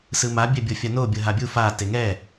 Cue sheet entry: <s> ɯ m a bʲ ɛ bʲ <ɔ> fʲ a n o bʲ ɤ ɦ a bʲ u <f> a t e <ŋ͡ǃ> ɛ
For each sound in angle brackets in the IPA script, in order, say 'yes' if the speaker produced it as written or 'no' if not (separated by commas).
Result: yes, no, yes, no